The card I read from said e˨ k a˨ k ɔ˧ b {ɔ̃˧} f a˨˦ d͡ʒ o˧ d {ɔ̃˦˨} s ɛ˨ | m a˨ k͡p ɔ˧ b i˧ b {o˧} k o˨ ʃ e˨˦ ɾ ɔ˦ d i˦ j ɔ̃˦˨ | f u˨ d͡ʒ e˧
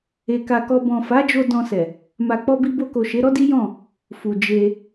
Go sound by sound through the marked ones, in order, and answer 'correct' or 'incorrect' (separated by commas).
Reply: incorrect, incorrect, correct